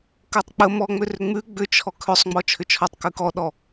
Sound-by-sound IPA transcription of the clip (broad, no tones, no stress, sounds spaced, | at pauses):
k ɜ tˤ k͡p ə m ɔ ŋ͡m ʏ r ʏ ŋ͡m ʉ ɡ͡b ʏ t͡ʃʰ ɔ kʰ ʏ sˤ ŋ͡m ɔ t͡ʃʰ ʏ t͡ʃʰ ɔ tˤ k ʉ k ɔ ɗ ɔ